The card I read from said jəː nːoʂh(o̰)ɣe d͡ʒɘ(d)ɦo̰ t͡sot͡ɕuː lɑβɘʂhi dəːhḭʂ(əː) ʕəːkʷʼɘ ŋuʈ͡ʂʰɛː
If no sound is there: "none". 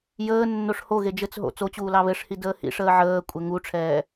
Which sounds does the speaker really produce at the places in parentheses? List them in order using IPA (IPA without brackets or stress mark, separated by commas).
o, t͡s, əː